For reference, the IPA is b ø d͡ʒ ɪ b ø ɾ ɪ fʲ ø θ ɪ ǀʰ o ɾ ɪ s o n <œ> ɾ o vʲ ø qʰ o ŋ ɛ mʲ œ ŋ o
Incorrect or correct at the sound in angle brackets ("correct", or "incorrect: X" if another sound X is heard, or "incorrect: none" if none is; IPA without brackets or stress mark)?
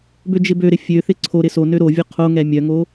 incorrect: ø